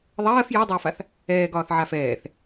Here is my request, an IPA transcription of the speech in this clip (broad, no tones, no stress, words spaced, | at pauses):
ðˤɜːf jɔdˤɛːfaθ | ɛːɡɒːθʕaf ɛːθ